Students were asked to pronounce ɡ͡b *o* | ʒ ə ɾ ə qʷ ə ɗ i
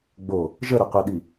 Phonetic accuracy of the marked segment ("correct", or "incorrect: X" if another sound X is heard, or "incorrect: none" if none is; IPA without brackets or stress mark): correct